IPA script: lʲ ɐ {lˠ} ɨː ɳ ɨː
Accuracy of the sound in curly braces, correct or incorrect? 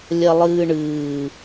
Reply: correct